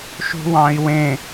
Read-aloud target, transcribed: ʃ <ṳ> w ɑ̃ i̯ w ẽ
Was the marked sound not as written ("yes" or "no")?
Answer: no